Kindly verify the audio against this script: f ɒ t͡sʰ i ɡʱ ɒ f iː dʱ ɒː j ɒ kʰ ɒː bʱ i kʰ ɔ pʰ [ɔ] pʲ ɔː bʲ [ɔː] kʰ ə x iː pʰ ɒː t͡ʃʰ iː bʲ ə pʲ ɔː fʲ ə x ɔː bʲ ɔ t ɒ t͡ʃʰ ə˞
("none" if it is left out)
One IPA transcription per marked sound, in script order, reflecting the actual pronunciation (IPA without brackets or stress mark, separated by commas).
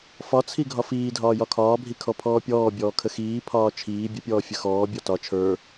ɔː, ɔː